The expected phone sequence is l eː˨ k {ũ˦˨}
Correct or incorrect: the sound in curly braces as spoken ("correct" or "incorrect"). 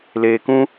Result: incorrect